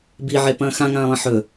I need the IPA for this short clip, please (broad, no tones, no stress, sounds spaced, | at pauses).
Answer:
b i ʕ e p ɐ̃ː x ã ŋ ãː lˠ ɐ̃ ħ ɵ